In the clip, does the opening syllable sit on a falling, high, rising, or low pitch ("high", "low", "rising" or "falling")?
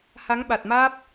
rising